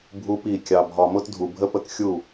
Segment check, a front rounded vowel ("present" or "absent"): absent